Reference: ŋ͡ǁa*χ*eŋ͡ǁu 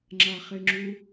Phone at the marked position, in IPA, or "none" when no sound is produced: χ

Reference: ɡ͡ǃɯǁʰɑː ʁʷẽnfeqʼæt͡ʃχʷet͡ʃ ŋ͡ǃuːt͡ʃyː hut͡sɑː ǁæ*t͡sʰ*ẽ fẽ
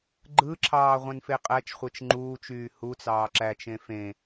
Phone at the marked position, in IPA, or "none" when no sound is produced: t͡ʃ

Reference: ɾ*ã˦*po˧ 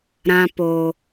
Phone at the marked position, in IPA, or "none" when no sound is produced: ã˦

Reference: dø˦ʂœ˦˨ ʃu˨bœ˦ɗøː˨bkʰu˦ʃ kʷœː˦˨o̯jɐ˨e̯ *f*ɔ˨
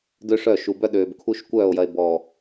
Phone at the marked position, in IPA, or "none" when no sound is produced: b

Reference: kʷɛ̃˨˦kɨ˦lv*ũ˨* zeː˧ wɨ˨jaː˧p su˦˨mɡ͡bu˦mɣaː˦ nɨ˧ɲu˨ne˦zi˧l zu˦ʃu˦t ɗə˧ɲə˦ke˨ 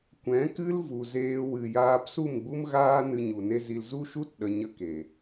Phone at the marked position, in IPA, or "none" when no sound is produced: u˨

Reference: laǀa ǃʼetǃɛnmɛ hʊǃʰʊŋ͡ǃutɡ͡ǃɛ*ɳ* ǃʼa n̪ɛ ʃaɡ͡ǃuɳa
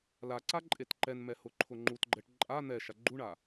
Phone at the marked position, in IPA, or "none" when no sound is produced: ʈ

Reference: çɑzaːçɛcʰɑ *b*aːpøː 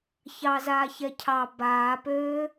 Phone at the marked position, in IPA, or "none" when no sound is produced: b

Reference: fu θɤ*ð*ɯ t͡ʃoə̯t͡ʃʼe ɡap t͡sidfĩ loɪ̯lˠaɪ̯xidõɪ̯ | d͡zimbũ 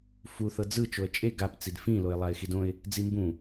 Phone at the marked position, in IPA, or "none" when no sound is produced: d͡z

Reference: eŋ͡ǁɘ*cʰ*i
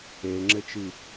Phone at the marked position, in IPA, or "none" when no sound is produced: t͡ʃ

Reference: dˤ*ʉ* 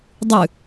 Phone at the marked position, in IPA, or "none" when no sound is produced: ʉ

